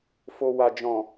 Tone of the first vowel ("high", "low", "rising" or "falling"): low